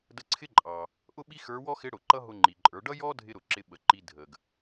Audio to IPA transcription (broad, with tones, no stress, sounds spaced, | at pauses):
d ə˧ ǀʰ ɪ˥ ǃʼ ɑ˩ | ʔ ʊ˥ ɓ i˥ x ə˞˧˥ w ɔ˥ x ɪ˧˥ ɽ ʊ˩ ǃ ʌ˥ ɦ ʊ˧ ŋ͡ǃ i˩ ǃʼ ə˞˩˧ ɖ ʌ˥ j ɔ˥ dʱ ɪ˥ ɾ ʊ˩ ǁ ɪ˧ ɓ ə˩ ǃ i˧ dʱ ə˩ ɡ